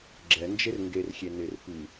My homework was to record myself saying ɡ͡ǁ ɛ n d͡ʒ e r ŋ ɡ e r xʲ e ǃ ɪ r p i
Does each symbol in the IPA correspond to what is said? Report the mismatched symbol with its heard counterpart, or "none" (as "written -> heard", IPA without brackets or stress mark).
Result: ǃ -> n